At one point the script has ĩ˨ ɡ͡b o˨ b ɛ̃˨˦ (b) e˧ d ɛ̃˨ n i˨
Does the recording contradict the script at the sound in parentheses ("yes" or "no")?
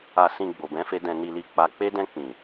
yes